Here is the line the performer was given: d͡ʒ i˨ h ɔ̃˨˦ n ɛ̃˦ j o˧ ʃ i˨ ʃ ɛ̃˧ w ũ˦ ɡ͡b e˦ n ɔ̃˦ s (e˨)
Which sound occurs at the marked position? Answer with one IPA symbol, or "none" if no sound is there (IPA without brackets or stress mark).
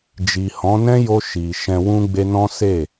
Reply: e˦˨